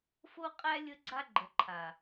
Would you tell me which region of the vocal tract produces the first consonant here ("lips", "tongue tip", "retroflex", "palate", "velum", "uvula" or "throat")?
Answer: lips